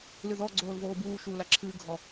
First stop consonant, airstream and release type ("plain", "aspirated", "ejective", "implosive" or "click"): click